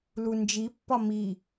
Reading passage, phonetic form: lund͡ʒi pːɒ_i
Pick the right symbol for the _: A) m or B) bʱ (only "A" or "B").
A